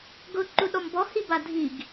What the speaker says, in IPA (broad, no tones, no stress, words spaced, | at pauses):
ɡʊǃuɗɔm bɔhiba dʱiɡ